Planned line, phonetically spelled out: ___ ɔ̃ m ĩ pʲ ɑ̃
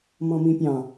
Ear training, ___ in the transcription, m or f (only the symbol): m